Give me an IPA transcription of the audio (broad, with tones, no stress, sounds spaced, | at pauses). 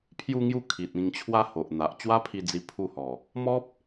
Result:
pʰ j u˧ ŋ j u˧ kʰ i˨ t̚ ĩ˨˩ ŋ t͡ɕʰ w a˧ h o˨ ʔ n̪ a˨ ʔ t͡ɕ w a˦ pʰ i˧ d͡z i˧ pʰ u˧ h ɔ˨˩ | m ɔ˦ p̚